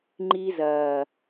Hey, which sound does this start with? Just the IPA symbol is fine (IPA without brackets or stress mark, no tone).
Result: ŋ͡ǃ